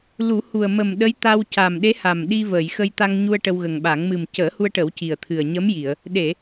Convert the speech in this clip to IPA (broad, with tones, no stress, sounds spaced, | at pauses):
l u˨˩˦ h u˨˩ ə̯ m ə˨˩ m ɗ ə˧˥ j t̪ a˧ w c a˨˩ m ɗ e˧˥ h a˨˩ m ɗ i˧ v əː˨˩˨ j x ə˧ j t̪ a˧ ŋ ɲ u˧ ə̯ ʈ ə˧ w ɣ ə˨˩ ŋ ɓ a˨˩˦ ŋ m ɨ˨˩ m c əː˨˩˦ h u˧ ə̯ ʈ ə˨˩˦ w c i˨˩ ə̯ t̪ʰ ɨ˨˩ ə̯ ɲ ə˧˥ m j i˨˩˨ ə̯ | ɗ e˨˩˨